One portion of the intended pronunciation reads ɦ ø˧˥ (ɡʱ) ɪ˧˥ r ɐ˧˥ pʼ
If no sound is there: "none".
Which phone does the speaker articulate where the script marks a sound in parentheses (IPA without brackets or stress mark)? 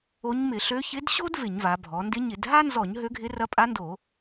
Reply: ɡʱ